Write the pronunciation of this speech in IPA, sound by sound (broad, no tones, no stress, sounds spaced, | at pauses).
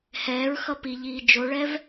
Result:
h ɛː ɹ x ʌ p i ʎ iː d͡ʒ o ɭ ɛ v